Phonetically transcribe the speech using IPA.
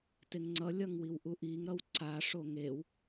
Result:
t e ŋ ŋ͡ǀ ʌ lʲ ʌ ŋ w i w ʔ u ʔ i ŋ ɾ ʌ w ǀ a ʂ o ŋ e w

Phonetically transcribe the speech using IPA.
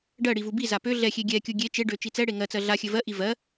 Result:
ɖ ɜ ɽ i v u b i z a p ø ɮ ɛ xʲ e ɡʲ ɛ kʲ u ɡʲ e t͡ʃ e ɖ ø t͡ʃ i t͡s ɛ ɽ e ŋ ɜ t͡s ɜ ɮ a xʲ ɘ v ɜ ʔ i v ɜ

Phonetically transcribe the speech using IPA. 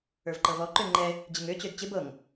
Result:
ə˞ v ǃ ɤ v ɔ ǃ ø ŋ͡ǃ ɛ | d͡ʑ ɪ ŋ ø t͡ɕ ø d t͡ɕ ɪ b ɤ ŋ

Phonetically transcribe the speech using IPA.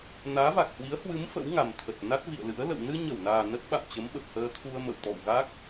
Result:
n aː˨˦ v a˨˩ k̚ h w i˨˦ ə̯ h w ɨ˨˦ m f ə̰˧˥ w ŋ a˨˩ m t̪ʰ ə˨˩ t̚ n a˦˥ t̚ v ḭ˧˨ ə̯ l ɨ̰˧˥ ə̯ l ə̰˧˨ w n ɨ˧ ɲ ə˧˩ w n aː˨˩ n ə˦˥ t̚ ɓ a̰˧˨ m t͡ɕ ə˨˦ m ɓ ə˨˩ p̚ h əː˧ t̪ʰ u˧ ə̯ m ə̰˧˨ w t̪ ɔ̰˧˨ w ɣ a˦˥ k̚

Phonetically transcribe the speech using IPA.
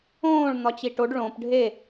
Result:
õː ɭ n̪ ɒ t͡ɕ i ʈ o ɖ ɭ õ p ɖʱ e

